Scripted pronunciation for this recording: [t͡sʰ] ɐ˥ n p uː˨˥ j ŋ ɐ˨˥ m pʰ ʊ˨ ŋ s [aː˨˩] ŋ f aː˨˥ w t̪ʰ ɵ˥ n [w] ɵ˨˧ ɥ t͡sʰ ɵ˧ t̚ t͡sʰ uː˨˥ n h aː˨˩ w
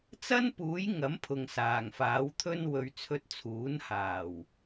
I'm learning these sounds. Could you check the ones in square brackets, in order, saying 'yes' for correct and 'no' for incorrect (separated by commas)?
no, yes, yes